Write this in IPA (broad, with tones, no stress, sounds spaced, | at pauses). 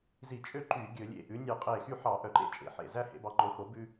z i˧˩˧ t͡ʃʼ ø˥˩ ǃ y˧˩˧ ɡʲ ɵ˧˩˧ lʲ ḛ˧˩ ʔ ʉ˩˥ nʲ ʉ˧˩˧ qʼ e˧˩ x y˥˩ ħ ɑ˧˩˧ ʔ œ˧˩˧ ǃ ḛ˥˩ t͡ʃʼ ḛ˧˩˧ ħ ḛ˧˩ z æ˥ h ḛ˩˥ b ɑ˩˥ ŋ͡ǃ o˩˥ x o˩˥ b ʉ˥